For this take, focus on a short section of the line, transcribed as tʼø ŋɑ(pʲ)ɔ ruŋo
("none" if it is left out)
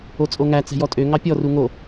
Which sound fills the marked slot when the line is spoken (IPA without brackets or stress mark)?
pʲ